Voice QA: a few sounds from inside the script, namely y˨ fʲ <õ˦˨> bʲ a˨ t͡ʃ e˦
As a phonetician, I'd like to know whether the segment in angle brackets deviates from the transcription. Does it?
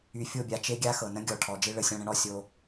yes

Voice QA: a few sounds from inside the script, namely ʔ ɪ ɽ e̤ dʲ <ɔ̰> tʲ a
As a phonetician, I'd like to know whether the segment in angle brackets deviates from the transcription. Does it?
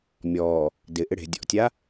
no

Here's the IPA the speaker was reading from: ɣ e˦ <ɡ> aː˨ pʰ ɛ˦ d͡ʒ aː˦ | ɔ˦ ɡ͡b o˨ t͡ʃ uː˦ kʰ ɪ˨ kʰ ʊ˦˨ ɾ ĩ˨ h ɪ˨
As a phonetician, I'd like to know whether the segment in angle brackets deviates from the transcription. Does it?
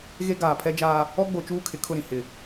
no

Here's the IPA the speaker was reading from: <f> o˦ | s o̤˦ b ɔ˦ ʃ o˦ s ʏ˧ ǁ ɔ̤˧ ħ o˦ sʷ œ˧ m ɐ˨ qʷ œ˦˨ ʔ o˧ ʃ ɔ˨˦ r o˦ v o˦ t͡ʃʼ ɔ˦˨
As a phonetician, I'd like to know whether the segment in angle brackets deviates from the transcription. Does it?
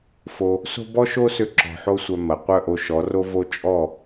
no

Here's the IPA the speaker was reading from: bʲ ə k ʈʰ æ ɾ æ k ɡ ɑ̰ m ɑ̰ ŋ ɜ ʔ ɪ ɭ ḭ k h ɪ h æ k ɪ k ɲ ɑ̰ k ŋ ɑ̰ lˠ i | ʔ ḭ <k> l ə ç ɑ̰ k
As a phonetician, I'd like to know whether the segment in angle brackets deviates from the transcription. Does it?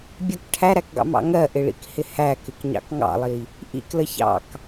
no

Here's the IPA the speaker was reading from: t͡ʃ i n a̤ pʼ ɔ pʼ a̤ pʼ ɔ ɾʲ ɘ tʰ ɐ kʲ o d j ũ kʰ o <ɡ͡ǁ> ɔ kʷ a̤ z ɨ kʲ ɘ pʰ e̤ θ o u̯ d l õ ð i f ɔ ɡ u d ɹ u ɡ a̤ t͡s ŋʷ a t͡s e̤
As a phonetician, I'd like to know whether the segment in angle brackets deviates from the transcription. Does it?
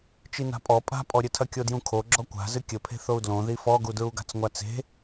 no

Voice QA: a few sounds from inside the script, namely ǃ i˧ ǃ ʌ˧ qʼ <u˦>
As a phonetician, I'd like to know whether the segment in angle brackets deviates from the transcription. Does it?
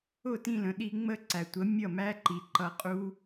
no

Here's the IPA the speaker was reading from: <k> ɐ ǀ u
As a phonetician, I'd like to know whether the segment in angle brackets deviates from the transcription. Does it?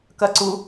no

